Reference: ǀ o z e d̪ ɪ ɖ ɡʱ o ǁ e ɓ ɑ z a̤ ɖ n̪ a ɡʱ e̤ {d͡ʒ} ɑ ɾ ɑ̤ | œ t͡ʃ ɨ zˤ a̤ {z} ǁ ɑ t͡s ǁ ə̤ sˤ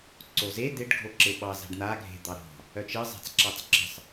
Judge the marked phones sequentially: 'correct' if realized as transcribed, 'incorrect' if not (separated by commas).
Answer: incorrect, incorrect